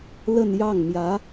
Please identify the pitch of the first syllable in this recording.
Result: falling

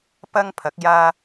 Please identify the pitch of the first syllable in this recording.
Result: high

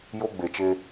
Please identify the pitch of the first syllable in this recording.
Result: high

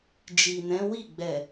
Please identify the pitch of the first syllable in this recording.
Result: low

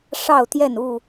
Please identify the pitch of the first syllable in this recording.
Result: falling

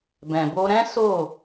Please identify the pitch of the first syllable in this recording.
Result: low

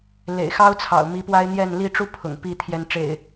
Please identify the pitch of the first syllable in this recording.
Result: low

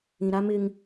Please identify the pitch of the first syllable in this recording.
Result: low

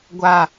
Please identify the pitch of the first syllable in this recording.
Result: low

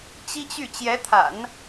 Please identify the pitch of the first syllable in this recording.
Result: high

